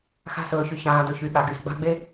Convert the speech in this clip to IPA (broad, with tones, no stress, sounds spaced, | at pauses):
x a̤˦ s ɵː˨ ç y˨ ç ãː˨ d ɵ˨ ç y˨ ɠ a˨ ɡ y˨ s ɡ͡b a̤˦ ɡ͡b e˦